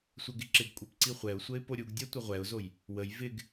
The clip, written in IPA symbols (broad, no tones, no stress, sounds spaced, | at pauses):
sʷ ɛ ɡ ɪ ǁ ɪ ɡ kʷʼ ɛ p ǀ i χʷ ɛ ʊ̯ sʷ ə ɪ̯ p o ɾʲ u ɡ dʲ ɛ tʷ ə ʁʷ ɛ ʊ̯ z o j | w ə j v ɪ ɡ